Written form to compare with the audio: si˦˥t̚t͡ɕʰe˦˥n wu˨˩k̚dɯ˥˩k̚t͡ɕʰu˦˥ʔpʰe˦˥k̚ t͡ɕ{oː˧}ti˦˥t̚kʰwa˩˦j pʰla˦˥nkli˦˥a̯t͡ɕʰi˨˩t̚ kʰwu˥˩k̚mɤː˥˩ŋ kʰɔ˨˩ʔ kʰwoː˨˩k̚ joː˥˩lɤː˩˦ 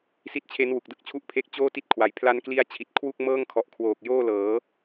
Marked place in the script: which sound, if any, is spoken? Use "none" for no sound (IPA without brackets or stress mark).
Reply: oː˥˩